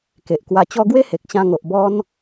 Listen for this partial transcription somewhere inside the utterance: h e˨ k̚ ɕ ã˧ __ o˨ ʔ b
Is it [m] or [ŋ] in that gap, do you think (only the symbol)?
ŋ